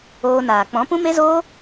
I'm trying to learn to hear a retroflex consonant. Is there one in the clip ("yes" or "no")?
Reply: no